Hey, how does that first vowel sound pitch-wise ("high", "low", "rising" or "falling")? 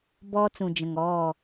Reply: high